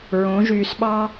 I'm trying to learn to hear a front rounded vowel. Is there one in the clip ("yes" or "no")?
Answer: yes